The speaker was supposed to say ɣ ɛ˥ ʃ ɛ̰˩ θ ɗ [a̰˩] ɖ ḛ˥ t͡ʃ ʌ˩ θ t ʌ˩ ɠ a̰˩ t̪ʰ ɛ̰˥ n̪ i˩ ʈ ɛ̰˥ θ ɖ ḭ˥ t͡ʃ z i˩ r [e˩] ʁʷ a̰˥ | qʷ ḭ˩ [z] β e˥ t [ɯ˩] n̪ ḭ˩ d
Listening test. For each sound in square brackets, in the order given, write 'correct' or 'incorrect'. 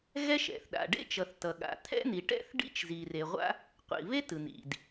correct, correct, incorrect: none, correct

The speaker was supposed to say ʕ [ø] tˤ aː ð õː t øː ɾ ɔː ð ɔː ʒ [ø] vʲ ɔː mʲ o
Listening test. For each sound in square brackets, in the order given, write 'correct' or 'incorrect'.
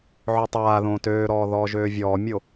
correct, incorrect: øː

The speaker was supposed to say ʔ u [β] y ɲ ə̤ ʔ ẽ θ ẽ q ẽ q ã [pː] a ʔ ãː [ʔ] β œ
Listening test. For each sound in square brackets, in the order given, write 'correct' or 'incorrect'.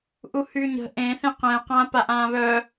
incorrect: h, incorrect: p, incorrect: none

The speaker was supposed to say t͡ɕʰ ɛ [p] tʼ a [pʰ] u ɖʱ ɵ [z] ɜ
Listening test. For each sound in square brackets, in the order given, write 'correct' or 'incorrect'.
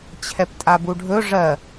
correct, incorrect: b, incorrect: ʐ

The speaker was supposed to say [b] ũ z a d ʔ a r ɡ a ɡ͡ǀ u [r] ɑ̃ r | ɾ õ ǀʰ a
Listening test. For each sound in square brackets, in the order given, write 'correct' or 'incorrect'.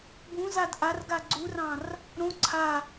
correct, correct

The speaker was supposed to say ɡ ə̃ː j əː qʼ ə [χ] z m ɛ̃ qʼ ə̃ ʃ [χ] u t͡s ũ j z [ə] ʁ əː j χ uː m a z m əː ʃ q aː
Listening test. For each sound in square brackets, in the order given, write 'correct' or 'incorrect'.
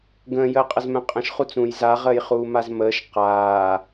incorrect: none, correct, incorrect: a

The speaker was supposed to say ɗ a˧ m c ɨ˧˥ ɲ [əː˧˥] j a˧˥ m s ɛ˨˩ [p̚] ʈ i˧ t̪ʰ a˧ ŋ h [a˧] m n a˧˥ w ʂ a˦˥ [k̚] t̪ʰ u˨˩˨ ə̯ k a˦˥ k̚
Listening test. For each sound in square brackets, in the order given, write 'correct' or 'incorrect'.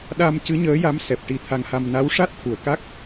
correct, correct, correct, incorrect: t̚

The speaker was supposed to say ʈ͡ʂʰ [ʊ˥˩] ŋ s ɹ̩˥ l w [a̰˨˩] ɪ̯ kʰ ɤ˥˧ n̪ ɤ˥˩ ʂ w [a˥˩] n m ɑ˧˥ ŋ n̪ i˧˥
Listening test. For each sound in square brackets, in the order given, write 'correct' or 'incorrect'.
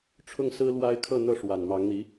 correct, incorrect: a˥, incorrect: a˨˩

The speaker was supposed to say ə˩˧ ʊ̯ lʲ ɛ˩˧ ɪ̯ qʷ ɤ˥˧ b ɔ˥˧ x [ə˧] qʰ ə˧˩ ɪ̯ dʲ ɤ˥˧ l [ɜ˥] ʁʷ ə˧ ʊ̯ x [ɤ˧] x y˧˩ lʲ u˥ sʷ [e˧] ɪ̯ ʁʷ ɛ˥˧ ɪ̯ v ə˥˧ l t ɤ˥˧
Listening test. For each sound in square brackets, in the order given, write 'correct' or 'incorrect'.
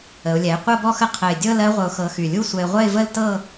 incorrect: ə˥˧, correct, correct, incorrect: ɛ˧

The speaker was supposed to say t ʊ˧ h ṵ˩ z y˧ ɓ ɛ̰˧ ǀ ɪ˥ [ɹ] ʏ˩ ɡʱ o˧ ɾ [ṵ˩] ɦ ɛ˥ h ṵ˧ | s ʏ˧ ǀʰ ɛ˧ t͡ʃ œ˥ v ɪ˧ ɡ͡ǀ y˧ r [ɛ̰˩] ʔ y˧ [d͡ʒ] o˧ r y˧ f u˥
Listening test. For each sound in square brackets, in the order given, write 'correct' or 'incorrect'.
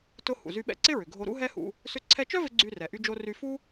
correct, incorrect: ṵ˥, incorrect: ɛ˩, correct

